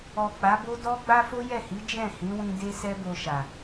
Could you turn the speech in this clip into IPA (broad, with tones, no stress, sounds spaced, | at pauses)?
ɔ˨ k͡p a˨˦ b o˦ d ɔ˦ ɡ͡b a˦ f o˦ j ɛ˦˨ h i˨˦ d͡ʒ ɛ̃˦˨ h ĩ˨˦ w ĩ˧ d e˦ s ɛ˦ b o˧ ʃ a˨